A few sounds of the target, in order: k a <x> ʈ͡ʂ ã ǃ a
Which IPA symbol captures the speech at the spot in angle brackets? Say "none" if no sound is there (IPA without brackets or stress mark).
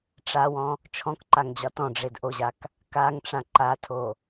ŋ